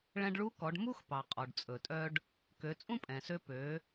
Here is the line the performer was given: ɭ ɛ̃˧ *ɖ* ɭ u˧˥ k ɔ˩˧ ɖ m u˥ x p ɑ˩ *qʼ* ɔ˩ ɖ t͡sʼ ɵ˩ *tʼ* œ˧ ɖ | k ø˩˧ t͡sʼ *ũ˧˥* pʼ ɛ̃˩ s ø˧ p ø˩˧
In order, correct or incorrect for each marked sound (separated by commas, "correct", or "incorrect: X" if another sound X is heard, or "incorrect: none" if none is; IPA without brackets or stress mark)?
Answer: correct, correct, correct, incorrect: ũ˥